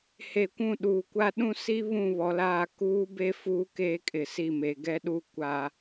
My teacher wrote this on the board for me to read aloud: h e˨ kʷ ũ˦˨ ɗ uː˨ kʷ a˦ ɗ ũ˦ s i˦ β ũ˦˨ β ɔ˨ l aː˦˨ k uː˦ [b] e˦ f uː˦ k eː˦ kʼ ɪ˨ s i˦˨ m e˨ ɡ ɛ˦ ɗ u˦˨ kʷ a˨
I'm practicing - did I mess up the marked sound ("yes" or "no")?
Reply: no